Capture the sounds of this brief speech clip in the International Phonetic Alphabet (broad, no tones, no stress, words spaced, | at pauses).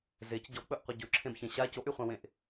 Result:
zec ɟɔk͡pɵʔqʷʌ ɟɵǁʰẽbçẽ ɕa coʔyχʷãwẽʔ